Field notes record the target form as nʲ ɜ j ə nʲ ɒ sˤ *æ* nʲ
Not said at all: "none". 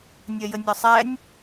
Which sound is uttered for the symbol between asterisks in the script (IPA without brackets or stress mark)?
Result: æ